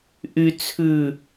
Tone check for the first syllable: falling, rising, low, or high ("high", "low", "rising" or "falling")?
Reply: low